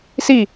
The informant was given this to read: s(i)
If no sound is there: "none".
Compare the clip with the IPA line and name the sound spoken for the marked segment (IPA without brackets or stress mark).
i